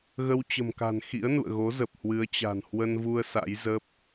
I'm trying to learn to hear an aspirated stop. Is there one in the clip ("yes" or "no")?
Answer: no